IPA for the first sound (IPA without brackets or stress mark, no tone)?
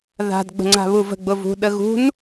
ð